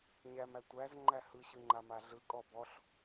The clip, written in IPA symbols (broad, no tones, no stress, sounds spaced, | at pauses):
ɲ æ m æ tʷ æ z ŋ͡ǃ æ h ɯ ɕ ɯ ŋ͡ǃ a m a ɮ ɯ kʼ ɔ b ɔ ɬ